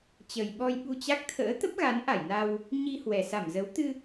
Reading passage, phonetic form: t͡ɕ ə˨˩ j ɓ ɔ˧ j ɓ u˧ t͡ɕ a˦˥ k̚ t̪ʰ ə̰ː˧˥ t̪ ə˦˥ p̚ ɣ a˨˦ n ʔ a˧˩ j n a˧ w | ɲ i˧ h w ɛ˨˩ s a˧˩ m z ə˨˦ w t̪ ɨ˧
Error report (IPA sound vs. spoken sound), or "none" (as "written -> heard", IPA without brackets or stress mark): none